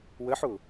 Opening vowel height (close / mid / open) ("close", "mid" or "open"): mid